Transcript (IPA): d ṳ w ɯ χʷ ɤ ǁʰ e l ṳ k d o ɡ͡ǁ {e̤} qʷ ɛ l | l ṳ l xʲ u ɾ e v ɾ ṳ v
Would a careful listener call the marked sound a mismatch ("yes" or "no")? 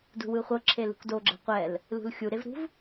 yes